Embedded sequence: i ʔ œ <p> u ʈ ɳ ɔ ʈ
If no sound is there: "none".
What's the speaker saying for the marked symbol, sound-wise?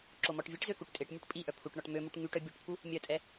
pʰ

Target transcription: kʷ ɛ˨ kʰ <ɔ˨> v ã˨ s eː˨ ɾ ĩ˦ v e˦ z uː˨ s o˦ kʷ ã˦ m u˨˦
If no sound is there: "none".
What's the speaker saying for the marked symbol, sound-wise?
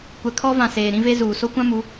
ɔ˦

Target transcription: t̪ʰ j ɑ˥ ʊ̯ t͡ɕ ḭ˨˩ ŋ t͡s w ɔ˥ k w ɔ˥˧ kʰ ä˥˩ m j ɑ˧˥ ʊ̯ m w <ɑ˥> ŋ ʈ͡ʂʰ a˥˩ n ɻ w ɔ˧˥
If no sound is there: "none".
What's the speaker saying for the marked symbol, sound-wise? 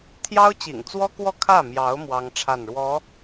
ɑ˥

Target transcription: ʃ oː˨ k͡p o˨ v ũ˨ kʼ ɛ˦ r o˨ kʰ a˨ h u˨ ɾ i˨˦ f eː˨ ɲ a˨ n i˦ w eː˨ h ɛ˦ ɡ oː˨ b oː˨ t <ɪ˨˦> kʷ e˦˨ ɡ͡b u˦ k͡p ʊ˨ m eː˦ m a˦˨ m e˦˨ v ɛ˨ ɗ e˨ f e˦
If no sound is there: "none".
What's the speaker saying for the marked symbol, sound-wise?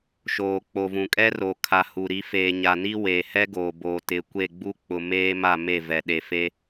ɪ˨˦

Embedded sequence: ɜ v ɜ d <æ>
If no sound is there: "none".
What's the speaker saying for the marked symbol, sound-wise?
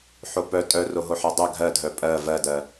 ɜ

